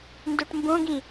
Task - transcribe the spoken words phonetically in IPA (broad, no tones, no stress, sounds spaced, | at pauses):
n d o ʈ m b õ ɡ ĩ